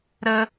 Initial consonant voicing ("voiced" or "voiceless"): voiced